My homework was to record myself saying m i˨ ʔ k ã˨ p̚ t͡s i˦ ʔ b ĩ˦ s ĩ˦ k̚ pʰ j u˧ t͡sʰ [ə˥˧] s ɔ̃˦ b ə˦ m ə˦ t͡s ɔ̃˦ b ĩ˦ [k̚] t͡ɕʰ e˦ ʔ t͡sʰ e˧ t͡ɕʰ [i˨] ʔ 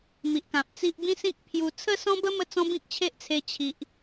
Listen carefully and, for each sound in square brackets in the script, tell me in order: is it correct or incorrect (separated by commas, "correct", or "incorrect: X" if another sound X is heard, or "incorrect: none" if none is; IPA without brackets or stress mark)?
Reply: correct, correct, correct